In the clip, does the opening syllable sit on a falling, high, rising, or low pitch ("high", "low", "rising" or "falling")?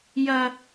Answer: high